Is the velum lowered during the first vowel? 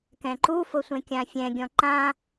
yes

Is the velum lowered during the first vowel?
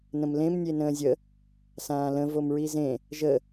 yes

